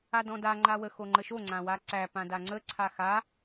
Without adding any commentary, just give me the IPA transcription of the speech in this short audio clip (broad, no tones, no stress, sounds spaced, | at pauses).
a d ɔ̃ d a ŋ͡ǃ a w ə x o ŋ͡ǃ ə ʃ o ŋ͡ǀ ã w a ǀ æ p ã d a ŋ͡ǀ ə ǀʰ a x a